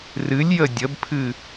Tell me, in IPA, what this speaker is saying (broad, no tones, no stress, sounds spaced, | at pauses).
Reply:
r ɨ lʲ j ə dʲ ə b pʰ ɨ